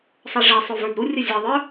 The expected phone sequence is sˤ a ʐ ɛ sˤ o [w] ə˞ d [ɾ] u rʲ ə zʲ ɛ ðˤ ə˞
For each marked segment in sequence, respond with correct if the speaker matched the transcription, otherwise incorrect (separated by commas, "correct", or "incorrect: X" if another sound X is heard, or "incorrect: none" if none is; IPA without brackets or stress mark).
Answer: incorrect: v, correct